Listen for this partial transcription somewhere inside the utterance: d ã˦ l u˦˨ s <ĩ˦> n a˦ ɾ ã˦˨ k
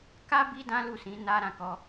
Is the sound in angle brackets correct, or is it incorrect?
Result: incorrect